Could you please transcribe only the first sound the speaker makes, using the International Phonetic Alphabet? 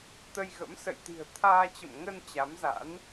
t̪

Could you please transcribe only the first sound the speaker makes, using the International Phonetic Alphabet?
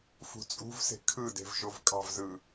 f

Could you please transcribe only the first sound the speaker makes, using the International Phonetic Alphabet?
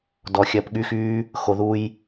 d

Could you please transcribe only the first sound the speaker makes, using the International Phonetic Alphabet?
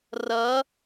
r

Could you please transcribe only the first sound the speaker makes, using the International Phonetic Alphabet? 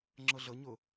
ŋ͡ǁ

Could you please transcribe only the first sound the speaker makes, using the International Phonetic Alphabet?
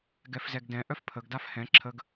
ɡ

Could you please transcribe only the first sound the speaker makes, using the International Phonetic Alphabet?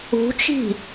ṳ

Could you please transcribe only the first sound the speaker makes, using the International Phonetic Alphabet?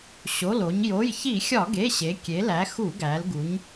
ɕ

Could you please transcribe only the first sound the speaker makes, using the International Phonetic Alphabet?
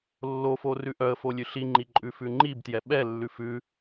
lː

